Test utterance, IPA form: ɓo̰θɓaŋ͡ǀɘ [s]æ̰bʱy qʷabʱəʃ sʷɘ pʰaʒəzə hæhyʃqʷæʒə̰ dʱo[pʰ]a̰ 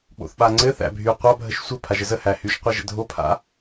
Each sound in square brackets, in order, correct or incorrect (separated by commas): incorrect, correct